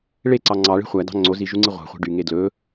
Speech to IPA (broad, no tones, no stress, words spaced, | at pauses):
ɭeǀɑ ŋ͡ǀɑɭe̤ χʷædɑ̤ ŋ͡ǀoziʒuŋ͡ǀi ʁʷɑ̤χʷe̤ ɖyŋe dlɵ